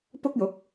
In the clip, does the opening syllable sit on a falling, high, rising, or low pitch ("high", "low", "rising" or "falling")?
high